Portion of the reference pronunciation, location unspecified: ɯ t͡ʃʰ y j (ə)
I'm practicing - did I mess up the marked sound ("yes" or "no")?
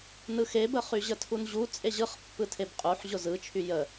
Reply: no